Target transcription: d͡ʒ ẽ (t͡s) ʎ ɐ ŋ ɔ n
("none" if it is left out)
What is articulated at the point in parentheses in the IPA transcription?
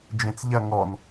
t͡s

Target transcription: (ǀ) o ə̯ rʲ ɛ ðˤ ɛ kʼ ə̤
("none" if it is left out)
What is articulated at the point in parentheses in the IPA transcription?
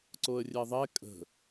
ǀ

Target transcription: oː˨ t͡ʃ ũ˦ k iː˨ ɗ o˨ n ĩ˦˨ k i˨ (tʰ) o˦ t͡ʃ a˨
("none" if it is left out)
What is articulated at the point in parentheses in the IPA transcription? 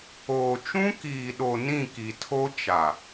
tʰ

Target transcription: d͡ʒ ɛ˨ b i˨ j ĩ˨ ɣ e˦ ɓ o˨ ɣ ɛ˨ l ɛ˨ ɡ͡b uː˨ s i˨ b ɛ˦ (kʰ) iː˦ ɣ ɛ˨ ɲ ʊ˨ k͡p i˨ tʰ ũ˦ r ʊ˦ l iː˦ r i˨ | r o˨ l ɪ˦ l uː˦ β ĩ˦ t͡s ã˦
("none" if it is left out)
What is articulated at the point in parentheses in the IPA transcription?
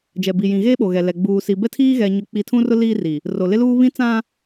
tʰ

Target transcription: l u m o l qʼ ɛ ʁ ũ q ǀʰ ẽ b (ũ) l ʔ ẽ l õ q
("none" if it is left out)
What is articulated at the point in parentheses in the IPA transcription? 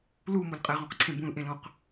ũ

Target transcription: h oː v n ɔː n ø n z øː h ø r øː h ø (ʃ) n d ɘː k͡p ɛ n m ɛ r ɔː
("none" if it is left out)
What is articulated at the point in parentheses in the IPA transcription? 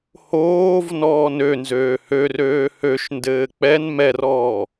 ʃ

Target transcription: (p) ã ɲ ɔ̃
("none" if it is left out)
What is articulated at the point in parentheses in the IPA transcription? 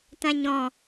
t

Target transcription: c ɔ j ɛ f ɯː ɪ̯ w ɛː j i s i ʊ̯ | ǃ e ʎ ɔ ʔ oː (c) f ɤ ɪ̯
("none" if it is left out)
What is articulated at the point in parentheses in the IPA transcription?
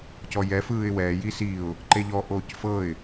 c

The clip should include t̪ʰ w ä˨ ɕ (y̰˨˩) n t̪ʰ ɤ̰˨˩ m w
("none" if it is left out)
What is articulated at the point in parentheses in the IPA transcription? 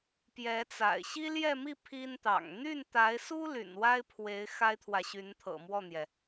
y˧˥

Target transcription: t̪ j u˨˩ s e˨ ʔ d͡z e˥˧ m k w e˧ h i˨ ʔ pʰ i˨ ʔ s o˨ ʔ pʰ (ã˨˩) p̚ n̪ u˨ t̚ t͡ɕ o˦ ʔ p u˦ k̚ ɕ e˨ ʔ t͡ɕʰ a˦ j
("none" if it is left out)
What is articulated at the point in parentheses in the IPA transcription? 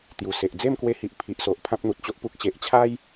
ã˦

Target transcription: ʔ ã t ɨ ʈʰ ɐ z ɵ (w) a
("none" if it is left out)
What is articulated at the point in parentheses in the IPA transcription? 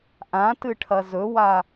w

